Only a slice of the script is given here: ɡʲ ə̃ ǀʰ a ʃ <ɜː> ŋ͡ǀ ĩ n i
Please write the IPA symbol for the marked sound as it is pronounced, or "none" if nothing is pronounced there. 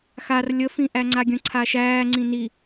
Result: æː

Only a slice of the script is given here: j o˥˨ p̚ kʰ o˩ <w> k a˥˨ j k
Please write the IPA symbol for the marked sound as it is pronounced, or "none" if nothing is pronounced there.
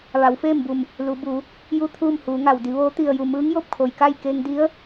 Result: j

